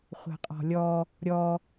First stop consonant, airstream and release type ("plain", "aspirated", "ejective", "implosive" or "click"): ejective